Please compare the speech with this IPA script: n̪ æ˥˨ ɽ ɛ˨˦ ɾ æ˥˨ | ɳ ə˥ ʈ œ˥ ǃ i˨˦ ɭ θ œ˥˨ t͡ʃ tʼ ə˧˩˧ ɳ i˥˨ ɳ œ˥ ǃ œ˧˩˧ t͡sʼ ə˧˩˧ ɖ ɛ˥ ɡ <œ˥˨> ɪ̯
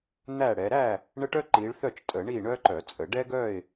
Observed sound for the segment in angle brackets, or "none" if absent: œ˥˨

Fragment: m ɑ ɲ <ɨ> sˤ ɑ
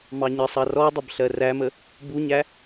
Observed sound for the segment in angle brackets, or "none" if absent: ə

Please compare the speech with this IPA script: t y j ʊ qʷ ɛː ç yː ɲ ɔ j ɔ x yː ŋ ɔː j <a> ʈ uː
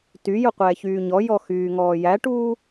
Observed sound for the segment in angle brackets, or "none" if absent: æ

